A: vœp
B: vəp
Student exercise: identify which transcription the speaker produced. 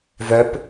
A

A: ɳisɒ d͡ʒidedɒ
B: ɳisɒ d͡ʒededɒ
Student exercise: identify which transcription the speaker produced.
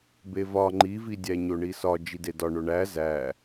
A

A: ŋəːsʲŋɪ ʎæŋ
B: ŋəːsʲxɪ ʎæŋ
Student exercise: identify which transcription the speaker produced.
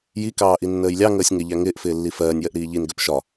A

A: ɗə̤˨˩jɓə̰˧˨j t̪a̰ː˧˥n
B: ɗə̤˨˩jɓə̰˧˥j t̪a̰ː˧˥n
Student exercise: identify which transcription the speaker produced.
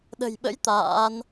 B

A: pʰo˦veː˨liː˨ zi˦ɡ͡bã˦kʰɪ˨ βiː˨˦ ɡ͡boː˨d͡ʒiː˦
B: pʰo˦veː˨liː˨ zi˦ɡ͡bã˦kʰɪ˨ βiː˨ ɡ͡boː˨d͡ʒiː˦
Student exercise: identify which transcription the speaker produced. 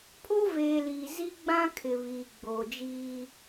B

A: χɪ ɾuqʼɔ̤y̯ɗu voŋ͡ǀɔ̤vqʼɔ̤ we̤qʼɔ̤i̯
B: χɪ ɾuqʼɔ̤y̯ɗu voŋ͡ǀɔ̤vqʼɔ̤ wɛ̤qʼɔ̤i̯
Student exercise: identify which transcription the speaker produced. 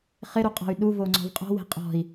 A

